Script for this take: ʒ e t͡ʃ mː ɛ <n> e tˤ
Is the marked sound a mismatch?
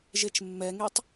yes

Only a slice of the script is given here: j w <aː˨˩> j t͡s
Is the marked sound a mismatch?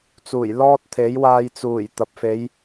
yes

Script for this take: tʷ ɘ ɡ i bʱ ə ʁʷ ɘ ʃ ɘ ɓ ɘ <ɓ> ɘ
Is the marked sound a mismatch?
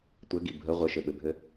yes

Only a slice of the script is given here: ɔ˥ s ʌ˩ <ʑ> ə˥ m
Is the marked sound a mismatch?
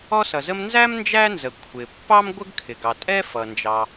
yes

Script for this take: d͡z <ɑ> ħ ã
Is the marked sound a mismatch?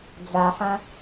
yes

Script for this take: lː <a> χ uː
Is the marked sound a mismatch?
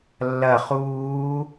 yes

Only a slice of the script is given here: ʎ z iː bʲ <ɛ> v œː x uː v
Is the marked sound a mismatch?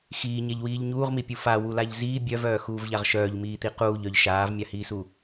yes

